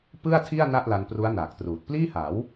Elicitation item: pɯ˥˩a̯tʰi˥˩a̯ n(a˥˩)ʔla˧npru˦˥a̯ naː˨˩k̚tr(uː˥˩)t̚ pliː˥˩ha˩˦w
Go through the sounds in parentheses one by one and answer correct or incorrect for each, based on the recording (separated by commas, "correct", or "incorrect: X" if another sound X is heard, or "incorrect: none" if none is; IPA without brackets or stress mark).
correct, incorrect: uː˨˩